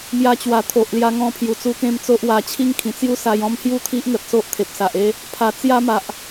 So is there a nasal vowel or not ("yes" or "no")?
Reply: yes